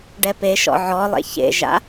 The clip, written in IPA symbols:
ɖɛpeʃɔ̰ ʕɔlˠḛ çḛʒa̰

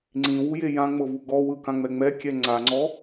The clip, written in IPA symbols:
ŋ͡ǀĩwuje jãŋ͡mɤvu ɡɔwɯkãŋ͡mɛ ŋ͡mɛkʲɛ ŋ͡ǀaŋ͡ǀɔ

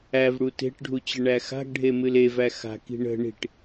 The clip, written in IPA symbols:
ævɽu te̤ʈɖʱu t͡ɕəɳæxa̤ɡɖʱe mɨlevæ xa̤ki̤ ɳə̤ ɳi̤ʈ

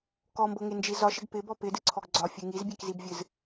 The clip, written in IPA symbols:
kɔmbɤŋend͡ʒi zɒʃɪɡ pɪbɔ pɪdɨǀʰɔɡ ɡ͡ǀɒfʲɨ ŋizbʲekzibvʲɨz

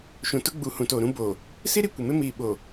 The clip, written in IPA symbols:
ʃũ˨tʊ˦ ɡ͡bu˨ hũ˨toː˨ɾũ˦ boː˨ | si˦ɾi˨ kʷɪ˨mɪ˦ miː˨ɓo˨

